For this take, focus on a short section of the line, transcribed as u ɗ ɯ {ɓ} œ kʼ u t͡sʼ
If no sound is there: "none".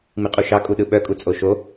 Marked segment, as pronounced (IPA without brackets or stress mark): ɓ